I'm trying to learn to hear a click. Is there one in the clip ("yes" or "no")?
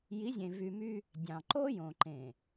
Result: yes